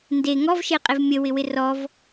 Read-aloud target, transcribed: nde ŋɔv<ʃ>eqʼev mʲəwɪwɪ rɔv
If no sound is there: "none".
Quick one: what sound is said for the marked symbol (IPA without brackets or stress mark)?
ʃ